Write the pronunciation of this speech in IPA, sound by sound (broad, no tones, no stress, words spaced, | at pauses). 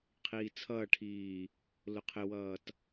qʰiːt͡sʰʌːʈʰiː | lʊqʰɪwʌːt